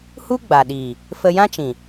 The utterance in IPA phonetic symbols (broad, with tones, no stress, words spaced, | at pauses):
hu˦ɡ͡ba˨ɗiː˨ | fə˧jã˦t͡ʃĩ˨